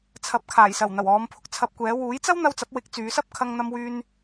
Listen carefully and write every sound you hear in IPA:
t͡sʰ ɐ˨˥ p̚ kʰ aː˨˩ j s ɐ˨˩ w n̪ ɐ˨˩ w ɔː˨˧ m pʰ ʊ˨ k̚ t͡sʰ ɐ˧ p̚ kʷ ɛː˨˥ w uː˨˥ j t͡s ɐ˥ w n̪ ɐ˧ w t͡s ɐ˨˥ p̚ w ɪ˨˥ k̚ t͡s yː˨˧ s ɐ˥ p̚ kʰ ɐ˧ ŋ n̪ ɐ˧ m w yː˧ n

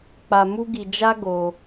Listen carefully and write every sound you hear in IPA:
k͡p a˧ m u˦ ɡ i˧ d͡ʒ a˦ ɡ o˧

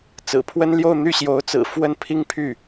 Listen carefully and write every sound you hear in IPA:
t͡s ɹ̩˨˩ pʰ w ə˥ n l j o˥˧ ʊ̯ n̪ y˥˩ ɕ j o˧˥ ʊ̯ t͡s ɹ̩˨˩ f w ə˥˩ n pʰ i˥ ŋ pʰ y˥˩

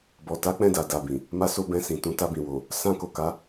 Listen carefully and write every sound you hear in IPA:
b ɔ˨ t a˨˦ k͡p ɛ̃˦˨ d a˨ d a˨ b ĩ˨ | m a˧ s o˧ b ɛ̃˧ s ĩ˨ t ũ˨˦ t a˧ b ĩ˨ w o˨ | s ã˧ k o˨ k a˨˦

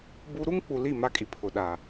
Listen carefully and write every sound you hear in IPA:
b u˦ ɾ u˦ ŋ k͡p u˨ l i˦˨ m a˦ kʼ i˨ pʰ ʊ˨ ɗ a˨

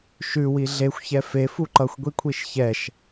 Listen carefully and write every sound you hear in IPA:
ʃ ʉ w i ɮ e xʷ ç ɛ f e f u ǃ ʌ xʷ ɡʷ i kʷʰ i ʃ ç ɛ ʃ

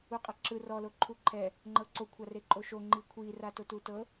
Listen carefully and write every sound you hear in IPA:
u qʼ a ǁ ɯ r ɔ l o ǃʰ u ǃʰ ɛ | ŋ͡ǃ ɤ ǀ o kʷʰ a r e ǃʼ o ʃ o ŋ͡ǃ i kʷʰ i r a t o t u t ɤ

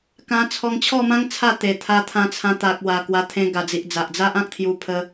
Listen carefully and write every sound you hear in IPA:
k ã˧ t͡sʰ ɔ˧ ŋ t͡ɕʰ ɔ˥˧ m ã˦ ŋ t͡sʰ a˥˧ t̪ e˨˩ t̪ʰ a˧ t̪ʰ ã˧ t͡sʰ ã˧ t̪ a˨ k̚ w a˨˩ k w a˧ t̪ʰ ẽ˧ ɡ a˨˩ d͡z i˨ ʔ d͡z a˨ ʔ d͡z a˦ ʔ ã˦ k̚ t̪ʰ j u˧ pʰ ə˧

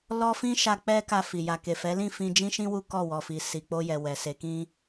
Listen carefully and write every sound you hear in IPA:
l ɔ˦ f ĩ˦ ʃ a˧ k͡p ɛ˦ k a˧ f i˨ j a˨ k e˨ f ɛ˨˦ l ĩ˦˨ f ĩ˧ d͡ʒ ĩ˦ ʃ ĩ˦ w u˦ k ɔ˦˨ w ɔ˨ f i˨ s i˨ k͡p o˧ j ɛ˨ w ɛ˨ s e˨˦ k ĩ˦

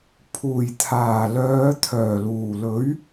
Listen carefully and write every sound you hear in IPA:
pʰ uː˨˩ j t̪ʰ aː˨˩ l œː˨˧ t̪ʰ œː˨˩ l uː˨˩ l ɵ˨˥ ɥ

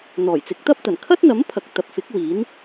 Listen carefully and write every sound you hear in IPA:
n̪ ɔː˨˩ j t͡s ɪ˨˥ k̚ t̪ ɐ˥ p̚ t̪ ɐ˨˩ n kʰ ɐ˥ t̚ n̪ ɐ˨˥ m pʰ ɐ˨ k̚ t̪ ɐ˨ p̚ f ɪ˨˥ k̚ w iː˨˥ n

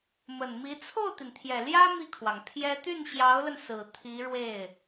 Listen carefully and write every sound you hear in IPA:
m ə˨˩ n m i˧˥ t͡sʰ o˥˩ ʊ̯ t̪ i˩ n t̪ʰ j ɛ˨˩ l j ä˥ m i˥˩ kʰ w ɑ˩ ŋ pʰ j ɛ˥ t̪ y˥˩ n ɕ j ɑ˧˥ ʊ̯ l ə˧ n s ɹ̩˨˩ t̪ʰ i˧˥ ɻ w e˥˩ ɪ̯

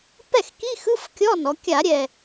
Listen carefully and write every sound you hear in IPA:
p ɛ˥˩ x k i˧˥˧ x ɯ˧˥˧ f kʲ ɔ˧˥˧ n ɔ˩˧ kʲ a˧˩˧ ɾʲ ɛ˨˩

